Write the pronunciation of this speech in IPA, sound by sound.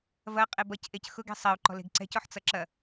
v ɐ qʼ e b ʌ c ʔ e c x ʊ ɡ e̤ sˤ ɐ u̯ ǃ ɔ̤ l e̤ ɡ ǀ ɛ̤ c ɔ ħ t͡s ʌ ǁ ɐ

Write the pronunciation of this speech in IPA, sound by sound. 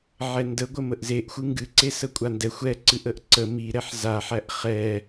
ʕ ɛ n d ə ɡʷ ə m ə ʔ z e ʔ xʷ ɨ ŋ ɡ ɨ ǀ e s ə kʷʼ a n d ɛ xʷ ɛ ǀ ɨ ʔ ə ʔ ǀ ə m i ɾ ɛ ħ z a ħ æ ʔ χ ɛ

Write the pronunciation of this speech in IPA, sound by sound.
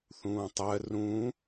θ ũː tˤ ɜ r ũ

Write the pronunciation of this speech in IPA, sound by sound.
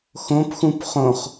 x õ p x ũ p χ õ χ

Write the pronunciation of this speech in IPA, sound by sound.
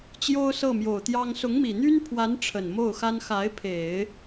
t͡ɕ j o˥ ʊ̯ s ɤ˥˩ m j o˨˩ ʊ̯ t̪ j ɑ˥ ŋ s ʊ˧˥ ŋ m i˨˩ n̪ y˥ n pʰ w a˧˥ n ʈ͡ʂʰ ə˨˩ n m o˥˩ ʊ̯ x a˥ n x a˧˥ ɪ̯ pʰ e˨˩˦ ɪ̯

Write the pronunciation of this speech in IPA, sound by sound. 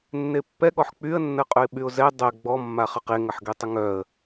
nː e pː ɛ ɠ ɔ ħ k͡p y ə̯ nː ə qʼ œ ɪ̯ ɓ y ʊ̯ z ɛ dˤ ɛ ɡ͡b ɔ mː a χ ə q e ŋ ə ħ ɡ e tˤ ə ŋ œ ə̯

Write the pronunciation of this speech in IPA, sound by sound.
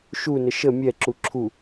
ʃ u n ə ʃ ə mʲ ɛ ǁ u ǁʰ u

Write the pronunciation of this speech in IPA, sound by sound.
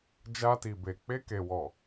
d͡ʒ a˧ t i˨ b e˨ k͡p e˧ k e˨ w ɔ˨

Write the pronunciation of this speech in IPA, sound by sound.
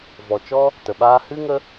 v ɔ˨ t͡ʃ ɔ˦ | t ə˨ ɓ aː˦ h ɨ˦ ŋ ə˧

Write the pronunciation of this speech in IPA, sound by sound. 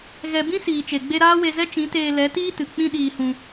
ɣ ɛ˧ b ĩ˦ s iː˨ t͡ʃ e˨ ɡ͡b e˧ ɾ aː˦ w e˧ z ɛ˦ t͡ʃ ĩ˨˦ t eː˧ l ɛ˨˦ t iː˦ t ɨ˨ k͡p ĩ˦ ɗ iː˧ h ũ˧

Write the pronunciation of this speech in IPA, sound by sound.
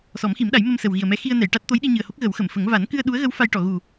s ɔ˨˩˦ m x i˨˩˦ m ɗ a˨˩˦ j m ə˧ m s ə˨˩ w ɣ i˨˩ ə̯ m ɛ˧˥ x i˧ ə̯ n ɛ˨˩˨ j ʈ a˦˥ t̚ t̪ o˧˥ j ɗ i˧ ɲ ɨ˨˩ ə̯ h o˦˥ k̚ ɣ ə˨˩˦ w x ə˨˩˨ m f ə˨˩˦ ŋ v a˨˩˦ n k ɨ˧ ə̯ ɗ u˧˥ ə̯ ɣ ə˧˥ w f a˧ j ʈ ɔ˨˩˨ ɣ u˨˩

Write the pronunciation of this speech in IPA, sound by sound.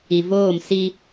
i˨ v oː˦˨ m s i˦

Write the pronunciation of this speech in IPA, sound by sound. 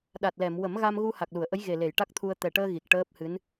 ɗ a˨˩ t̚ l ɛ˨˩˨ m w ə˨˩˦ m ɣ a˧ m ɣ u˧ h a˨˩ k̚ l u˨˩˨ ə̯ ʔ ə˧˥ j ɣ e˨˩ l e˨˩˨ j ʈ a˦˥ k̚ t̪ʰ u˧ ə̯ t̪ ɛ˨˩ ʈ əː˧ ɣ i˨˩ k̚ ʈ əː˦˥ p̚ h ɨ˧˥ n

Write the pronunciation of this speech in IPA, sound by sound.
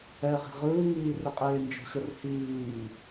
ɛ ʁ i̤ ʁ ɯː ŋ iː r ɪ qʼ eː n d͡ʒ ə̤ ɕ ə r h iː

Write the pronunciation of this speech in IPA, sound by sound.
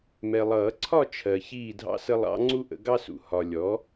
m ɛ˨ lˠ ʌː˨˩˦ ǀʰ ɒ˥˨ t͡ʃʰ ɜ˨ ç iː˥˨ dʱ ɑ̰˥ s ə˥ lˠ ɑ̰˧˥ ŋ͡ǀ u˥ ʔ ə̰˩˥ ɡ ɑ˥ s ṵ˨ h ɒ˨ lʲ ɔ˩˥

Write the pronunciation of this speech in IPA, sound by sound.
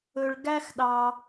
ɵ˩ ɭ ɡ æ˧ x ɗ ɑ˩

